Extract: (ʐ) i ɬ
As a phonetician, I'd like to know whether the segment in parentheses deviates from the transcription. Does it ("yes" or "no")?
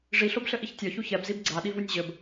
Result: no